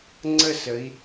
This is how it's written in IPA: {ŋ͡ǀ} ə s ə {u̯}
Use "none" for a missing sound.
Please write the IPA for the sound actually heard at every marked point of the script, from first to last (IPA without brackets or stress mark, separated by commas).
ŋ͡ǀ, i̯